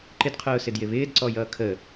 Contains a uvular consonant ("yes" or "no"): yes